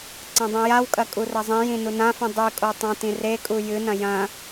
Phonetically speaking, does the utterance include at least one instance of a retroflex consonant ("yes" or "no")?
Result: no